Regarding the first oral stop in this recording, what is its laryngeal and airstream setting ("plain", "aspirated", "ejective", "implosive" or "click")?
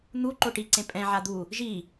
click